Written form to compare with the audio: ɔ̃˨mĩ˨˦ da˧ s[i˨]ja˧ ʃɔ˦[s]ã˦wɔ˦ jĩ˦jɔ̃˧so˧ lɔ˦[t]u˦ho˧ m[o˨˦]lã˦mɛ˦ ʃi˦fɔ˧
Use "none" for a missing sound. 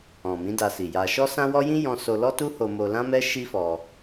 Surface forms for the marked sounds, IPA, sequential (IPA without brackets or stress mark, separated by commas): i˨, s, t, o˧